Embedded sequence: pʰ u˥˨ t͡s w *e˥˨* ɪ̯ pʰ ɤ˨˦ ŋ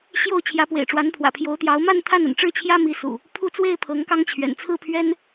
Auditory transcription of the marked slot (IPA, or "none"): e˥˨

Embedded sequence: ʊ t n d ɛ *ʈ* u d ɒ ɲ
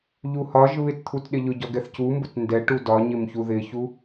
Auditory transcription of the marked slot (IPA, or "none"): ʈ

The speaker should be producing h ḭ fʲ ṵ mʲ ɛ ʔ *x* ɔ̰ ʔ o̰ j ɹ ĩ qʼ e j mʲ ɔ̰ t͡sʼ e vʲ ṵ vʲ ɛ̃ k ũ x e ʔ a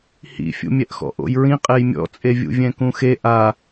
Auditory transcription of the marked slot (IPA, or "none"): x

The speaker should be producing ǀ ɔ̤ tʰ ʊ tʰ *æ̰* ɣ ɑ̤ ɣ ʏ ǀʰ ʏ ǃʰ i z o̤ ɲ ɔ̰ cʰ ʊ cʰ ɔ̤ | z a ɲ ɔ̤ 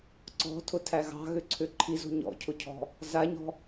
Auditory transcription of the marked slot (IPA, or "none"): æ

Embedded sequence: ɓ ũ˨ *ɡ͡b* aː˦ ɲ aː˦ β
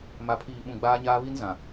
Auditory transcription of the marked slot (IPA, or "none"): ɡ͡b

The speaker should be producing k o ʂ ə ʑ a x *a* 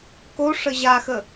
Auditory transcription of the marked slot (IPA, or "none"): ə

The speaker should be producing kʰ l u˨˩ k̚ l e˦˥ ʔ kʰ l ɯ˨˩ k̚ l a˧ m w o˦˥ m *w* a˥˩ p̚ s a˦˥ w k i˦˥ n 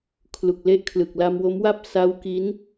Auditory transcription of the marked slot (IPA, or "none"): w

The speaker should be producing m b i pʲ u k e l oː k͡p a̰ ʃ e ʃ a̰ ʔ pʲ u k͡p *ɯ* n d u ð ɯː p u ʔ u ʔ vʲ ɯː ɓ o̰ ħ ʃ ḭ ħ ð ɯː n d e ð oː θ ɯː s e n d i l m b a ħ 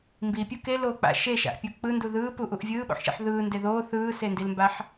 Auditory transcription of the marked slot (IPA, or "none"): ɯ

